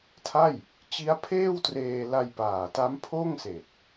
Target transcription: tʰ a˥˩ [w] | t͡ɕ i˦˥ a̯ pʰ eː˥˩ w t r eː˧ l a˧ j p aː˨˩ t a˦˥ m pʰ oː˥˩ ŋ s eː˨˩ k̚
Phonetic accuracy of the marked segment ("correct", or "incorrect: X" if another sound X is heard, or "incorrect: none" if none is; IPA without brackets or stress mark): incorrect: j